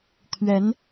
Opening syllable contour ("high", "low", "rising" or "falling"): rising